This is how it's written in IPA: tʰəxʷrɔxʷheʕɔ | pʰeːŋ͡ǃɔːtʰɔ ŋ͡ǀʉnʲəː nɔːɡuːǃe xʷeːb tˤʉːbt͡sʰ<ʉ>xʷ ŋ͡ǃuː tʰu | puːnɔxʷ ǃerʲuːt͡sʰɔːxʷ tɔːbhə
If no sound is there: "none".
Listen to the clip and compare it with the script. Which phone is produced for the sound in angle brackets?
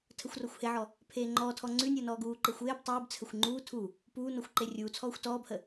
ə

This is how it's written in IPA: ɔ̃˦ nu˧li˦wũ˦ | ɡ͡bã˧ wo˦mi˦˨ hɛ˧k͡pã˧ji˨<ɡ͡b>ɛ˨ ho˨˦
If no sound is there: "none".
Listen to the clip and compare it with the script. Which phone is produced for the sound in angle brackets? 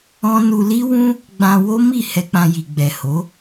ɡ͡b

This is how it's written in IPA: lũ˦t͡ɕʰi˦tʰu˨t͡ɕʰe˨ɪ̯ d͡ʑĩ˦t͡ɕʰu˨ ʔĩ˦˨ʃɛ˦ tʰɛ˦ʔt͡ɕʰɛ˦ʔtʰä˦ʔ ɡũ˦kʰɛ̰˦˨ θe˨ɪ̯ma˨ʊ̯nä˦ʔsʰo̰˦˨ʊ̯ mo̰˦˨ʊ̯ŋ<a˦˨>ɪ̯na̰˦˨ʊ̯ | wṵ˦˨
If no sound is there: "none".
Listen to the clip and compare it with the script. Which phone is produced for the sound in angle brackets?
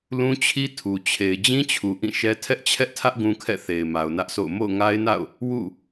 a˦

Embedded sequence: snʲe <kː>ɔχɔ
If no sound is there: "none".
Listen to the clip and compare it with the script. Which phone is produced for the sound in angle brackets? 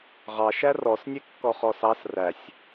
kː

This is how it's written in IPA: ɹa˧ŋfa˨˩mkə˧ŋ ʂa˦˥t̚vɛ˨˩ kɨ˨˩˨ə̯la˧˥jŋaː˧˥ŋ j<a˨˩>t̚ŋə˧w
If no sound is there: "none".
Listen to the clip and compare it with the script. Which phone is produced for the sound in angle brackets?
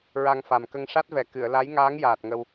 aː˨˩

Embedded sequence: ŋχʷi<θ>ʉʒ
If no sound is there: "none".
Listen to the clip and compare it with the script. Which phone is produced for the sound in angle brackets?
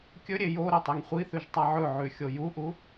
θ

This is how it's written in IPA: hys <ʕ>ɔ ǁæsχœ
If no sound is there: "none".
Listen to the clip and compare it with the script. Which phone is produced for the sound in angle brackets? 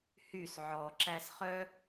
ʕ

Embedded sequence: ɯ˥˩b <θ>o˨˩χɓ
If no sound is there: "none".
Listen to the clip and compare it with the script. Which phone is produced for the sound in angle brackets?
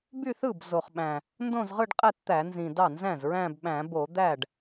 z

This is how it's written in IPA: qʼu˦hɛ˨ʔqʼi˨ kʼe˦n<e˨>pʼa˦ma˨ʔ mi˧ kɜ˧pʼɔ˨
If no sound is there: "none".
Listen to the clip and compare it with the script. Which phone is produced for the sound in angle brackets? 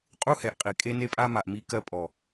e˦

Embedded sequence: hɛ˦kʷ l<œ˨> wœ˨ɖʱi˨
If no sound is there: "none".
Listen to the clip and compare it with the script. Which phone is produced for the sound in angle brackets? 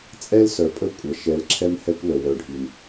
ə˨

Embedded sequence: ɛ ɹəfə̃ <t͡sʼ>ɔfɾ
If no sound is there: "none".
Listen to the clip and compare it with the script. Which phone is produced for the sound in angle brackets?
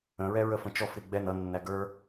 t͡ʃ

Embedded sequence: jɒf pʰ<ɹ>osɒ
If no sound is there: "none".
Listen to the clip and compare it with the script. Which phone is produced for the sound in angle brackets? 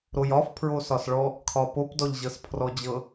ɹ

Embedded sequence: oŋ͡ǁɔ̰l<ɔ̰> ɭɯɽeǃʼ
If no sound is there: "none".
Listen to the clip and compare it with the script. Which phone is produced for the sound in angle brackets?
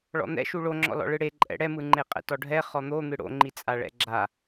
ɔ̰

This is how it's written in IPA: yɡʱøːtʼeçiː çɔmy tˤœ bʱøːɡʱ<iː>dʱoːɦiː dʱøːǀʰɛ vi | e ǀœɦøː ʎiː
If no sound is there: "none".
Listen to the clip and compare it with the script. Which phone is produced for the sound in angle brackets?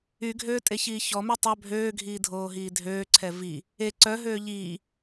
iː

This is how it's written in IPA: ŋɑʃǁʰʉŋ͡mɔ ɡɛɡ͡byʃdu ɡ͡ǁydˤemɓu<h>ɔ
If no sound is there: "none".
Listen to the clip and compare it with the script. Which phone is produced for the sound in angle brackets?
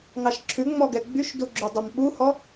h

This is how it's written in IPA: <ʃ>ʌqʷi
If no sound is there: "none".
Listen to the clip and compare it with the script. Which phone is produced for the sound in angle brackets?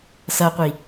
s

